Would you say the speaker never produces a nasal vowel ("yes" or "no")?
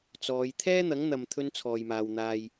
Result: yes